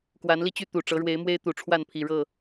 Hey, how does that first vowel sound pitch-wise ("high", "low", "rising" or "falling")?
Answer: rising